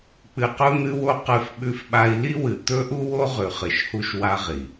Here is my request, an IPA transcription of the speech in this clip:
k͡p ɨ˧ q u˥ n̪ ɨ˥ w o˥ q ɨ˧ f ɓ ʉ˧ f ɓ a˧ i̯ l i˥ w ɨ˩ t̪ ɵ˥ ʔ u˥ w o˥ ʁ ʉ˩ χ ɨ˩ ʃ h u˧ ʃ w a˧ ʁ i˩

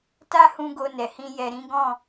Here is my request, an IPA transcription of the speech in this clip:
t a˦ h ũ˧ ɡ o˧ n ɛ˨ h ĩ˧ j ɛ˨ ɾ ĩ˨˦ ɡ ɔ̃˦˨

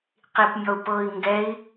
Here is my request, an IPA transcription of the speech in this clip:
q i p mʲ ɔ u̯ p ɤ i̯ ŋ ɡ ɛ i̯

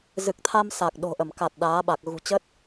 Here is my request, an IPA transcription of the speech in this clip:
z ɨ˨˩ k̚ t̪ʰ a˧ m s a˨˩ k̚ ɗ o̤˨˩ ʔ ə˧˩ m k a˨˩ t̚ ɗ aː˨˦ ɓ a˨˩ k̚ ɣ ṳ˨˩ t͡ɕ ə˦˥ t̚

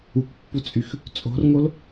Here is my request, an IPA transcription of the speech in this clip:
u k pː u t͡sʼ y x | t͡sʼ o̤ r ŋ o l

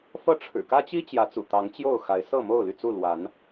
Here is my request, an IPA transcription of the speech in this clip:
f ɤ˥˨ ʈ͡ʂʰ ɻ̩˨˩ k ä˦ t͡ɕ i˦ t͡ɕ j ä˨˦ t͡s ṵ˨˩ t̪ ɑ˨˦ ŋ t͡ɕ j o˥˨ ʊ̯ x a˨˦ ɪ̯ s ɤ˥˨ m o˥˨ ʊ̯ l y˥˨ t͡s u˥˨ l w a˨˦ n

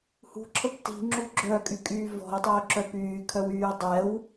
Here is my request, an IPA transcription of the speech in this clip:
h ṳ ǁʰ ə b t i̤ ŋ͡ǁ u ɡ͡ǁ œ kʼ y kʼ yː v ɔ̤ ʊ̯ tˤ œ ʊ̯ ǁ œ p yː kʰ œ w yː dˤ ɛ w

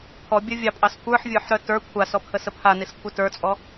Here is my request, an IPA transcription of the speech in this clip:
pʰ ɔ bʲ ə vʲ ɑ pʼ ɑ s kʷ ə˞ ħ vʲ ə˞ ħ ɾ œ t ə˞ kʷʰ a s ɔ pʰ ə s ə pʰ a n i s kʷʰ i t ə˞ t͡sʼ ɔ

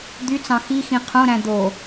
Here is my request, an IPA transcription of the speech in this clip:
d̪ y t͡s ɑ̃ x i x ĩ qʰ õ ɾ æ̃ d̪ o

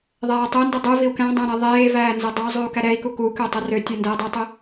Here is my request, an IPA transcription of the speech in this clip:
ðˤ ɛː tˤ ø n d ɵ dˤ ʉ v i u̯ k æ̃ dˤ ɛ̃ ɾ æ ðˤ eː v æː n z ɛ dˤ æ zˤ ʉ u̯ k æ ɾ ɛ i̯ k u k u k ø tˤ ɵ r ø tʲ ɛ n d ɛː dˤ i tˤ ɵ

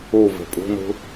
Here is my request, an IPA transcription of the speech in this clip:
u v e̤ pʼ ṳ n ṳ

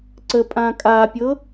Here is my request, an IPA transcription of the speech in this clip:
ǀ ə pʼ ã kʼ a pʲ ɤ

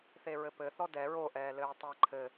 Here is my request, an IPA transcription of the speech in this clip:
θ e ɹ ɘ p ɘ θ ɔ d ɛ ɹ o ʔ ɛː l ɘː tˤ ɛ ǃʰ ɘ

